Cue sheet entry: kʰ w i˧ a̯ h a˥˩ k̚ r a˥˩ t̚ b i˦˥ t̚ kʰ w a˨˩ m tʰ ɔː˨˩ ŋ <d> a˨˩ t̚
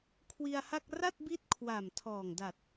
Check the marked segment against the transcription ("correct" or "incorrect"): correct